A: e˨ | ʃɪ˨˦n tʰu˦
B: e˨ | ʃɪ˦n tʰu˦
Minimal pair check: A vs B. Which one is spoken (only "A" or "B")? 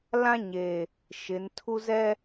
A